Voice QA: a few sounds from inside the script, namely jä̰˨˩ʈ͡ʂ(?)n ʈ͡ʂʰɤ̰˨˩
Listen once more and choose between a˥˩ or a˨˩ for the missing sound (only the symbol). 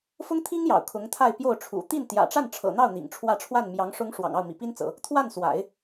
a˥˩